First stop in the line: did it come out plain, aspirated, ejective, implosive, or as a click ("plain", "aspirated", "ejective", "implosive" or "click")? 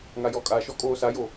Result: ejective